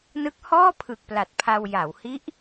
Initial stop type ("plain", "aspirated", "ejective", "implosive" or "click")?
plain